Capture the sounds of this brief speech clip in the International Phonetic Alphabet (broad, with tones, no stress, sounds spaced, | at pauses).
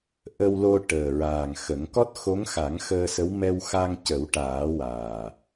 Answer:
ʔ ə˧ w l o˧ ʈ əː˨˩ ɹ aː˨˩ ŋ x ə˨˩˦ ŋ k ɔ˦˥ t̚ x o˧˥ ŋ x a˨˩˦ ŋ x əː˧ s ə˧˥ w m ɛ˧ w x a˧ ŋ c ə˨˩˦ w ʈ aː˨˩˦ w aː˨˩